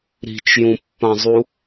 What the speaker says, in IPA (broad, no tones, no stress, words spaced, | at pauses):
ɾi̤t͡ʃjũpːãzˤu